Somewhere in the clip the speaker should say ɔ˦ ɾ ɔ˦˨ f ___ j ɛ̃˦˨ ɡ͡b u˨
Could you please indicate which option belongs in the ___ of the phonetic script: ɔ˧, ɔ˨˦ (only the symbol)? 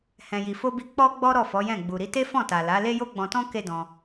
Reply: ɔ˨˦